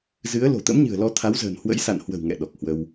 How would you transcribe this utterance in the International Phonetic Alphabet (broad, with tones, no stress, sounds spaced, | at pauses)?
z ɨ˨˦ ə̯ l o̤˨˩ t̪ ə̰˧˥ m ɲ ɨ̤˨˩ ə̯ l ɔ˧ t̪ʰ a˨˦ w z ə̤˨˩ n h w ə̰˧˥ j s a̰˧˨ n h w ə̤˨˩ w ŋ ɛ̰˧˨ ɗ ɔ˨˩ k̚ h w ə˧ w